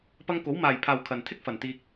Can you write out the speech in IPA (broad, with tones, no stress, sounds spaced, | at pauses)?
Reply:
p ɐ˧ ŋ k o˨˥ w m aː˨ j pʰ aː˨ w kʰ ɐ˨ n t̪ʰ ɪ˥ k̚ f ɐ˨ n t̪ iː˧ k̚